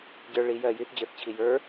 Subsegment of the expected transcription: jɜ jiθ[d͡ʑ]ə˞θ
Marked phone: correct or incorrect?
correct